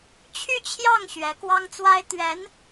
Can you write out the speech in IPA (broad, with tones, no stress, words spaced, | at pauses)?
t͡ɕʰy˥˧t͡ɕʰjɑ˥˩ŋ ɕɥɛ˧˥kwɑ˥ŋt͡swa˥ɪ̯ t̪ɥɛ˧˥n